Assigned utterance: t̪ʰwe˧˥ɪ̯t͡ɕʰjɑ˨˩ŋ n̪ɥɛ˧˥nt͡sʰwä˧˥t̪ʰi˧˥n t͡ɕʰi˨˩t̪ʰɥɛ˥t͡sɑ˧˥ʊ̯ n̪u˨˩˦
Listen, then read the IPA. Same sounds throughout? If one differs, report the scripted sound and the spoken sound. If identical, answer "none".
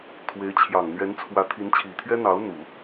t͡s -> n̪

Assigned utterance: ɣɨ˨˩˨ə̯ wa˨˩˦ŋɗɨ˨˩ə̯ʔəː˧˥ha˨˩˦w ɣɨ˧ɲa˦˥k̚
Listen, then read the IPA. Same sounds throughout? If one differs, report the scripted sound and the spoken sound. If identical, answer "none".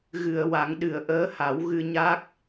none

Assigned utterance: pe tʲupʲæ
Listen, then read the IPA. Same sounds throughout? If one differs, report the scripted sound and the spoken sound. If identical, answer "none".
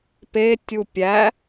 none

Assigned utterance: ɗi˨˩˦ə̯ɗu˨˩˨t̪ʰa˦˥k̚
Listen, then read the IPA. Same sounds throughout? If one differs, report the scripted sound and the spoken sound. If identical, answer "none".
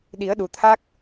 none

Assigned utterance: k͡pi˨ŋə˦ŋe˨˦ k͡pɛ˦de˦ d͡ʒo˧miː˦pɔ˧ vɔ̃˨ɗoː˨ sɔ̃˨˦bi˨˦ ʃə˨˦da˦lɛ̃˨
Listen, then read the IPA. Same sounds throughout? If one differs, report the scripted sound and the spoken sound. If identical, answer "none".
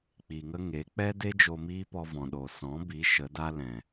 none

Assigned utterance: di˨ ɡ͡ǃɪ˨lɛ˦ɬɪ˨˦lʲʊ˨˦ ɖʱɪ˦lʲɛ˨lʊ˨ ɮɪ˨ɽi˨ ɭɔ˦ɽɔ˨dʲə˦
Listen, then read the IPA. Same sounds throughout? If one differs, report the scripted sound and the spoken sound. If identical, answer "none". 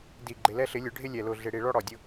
ə˦ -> ʊ˦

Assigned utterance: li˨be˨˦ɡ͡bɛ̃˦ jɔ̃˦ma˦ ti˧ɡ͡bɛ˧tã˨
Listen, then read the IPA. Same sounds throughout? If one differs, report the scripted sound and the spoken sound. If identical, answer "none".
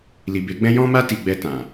none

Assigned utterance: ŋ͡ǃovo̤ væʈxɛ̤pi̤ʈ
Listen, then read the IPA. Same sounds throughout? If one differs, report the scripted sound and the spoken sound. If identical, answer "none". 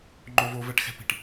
o̤ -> o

